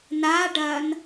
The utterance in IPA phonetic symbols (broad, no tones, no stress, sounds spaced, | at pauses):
n a ɖ ɐ n